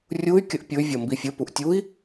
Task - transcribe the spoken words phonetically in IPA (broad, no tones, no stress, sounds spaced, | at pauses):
rʲ u y̯ kʲ ə ʔ pʲ ʊ y̯ vʲ ɒ m b i fʲ ə p u ʔ tʲ u i̯